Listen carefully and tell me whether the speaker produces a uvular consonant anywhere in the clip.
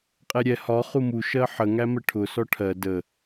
yes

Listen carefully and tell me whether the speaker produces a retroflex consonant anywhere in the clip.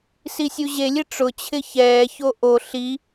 yes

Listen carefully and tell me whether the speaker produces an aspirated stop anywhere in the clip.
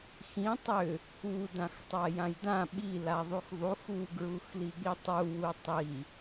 no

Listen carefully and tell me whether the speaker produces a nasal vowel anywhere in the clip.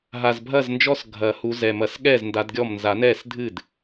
no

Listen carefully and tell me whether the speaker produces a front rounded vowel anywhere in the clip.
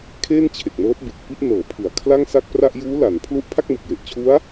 no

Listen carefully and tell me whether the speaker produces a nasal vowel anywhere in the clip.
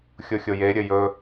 no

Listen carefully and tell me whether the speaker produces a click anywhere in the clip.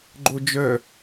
yes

